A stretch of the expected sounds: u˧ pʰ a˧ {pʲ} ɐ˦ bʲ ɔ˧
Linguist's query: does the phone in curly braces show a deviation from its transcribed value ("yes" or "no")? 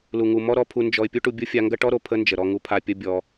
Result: no